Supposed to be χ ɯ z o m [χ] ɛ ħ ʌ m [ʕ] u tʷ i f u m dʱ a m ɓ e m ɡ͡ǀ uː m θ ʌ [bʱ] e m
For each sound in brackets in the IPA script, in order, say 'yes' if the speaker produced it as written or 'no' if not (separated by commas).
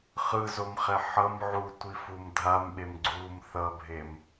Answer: yes, yes, yes